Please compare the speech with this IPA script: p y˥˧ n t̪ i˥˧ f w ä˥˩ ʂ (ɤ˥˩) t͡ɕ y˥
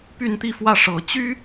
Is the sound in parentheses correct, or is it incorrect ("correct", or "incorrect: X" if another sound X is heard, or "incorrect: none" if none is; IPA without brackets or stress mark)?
incorrect: ɤ˨˩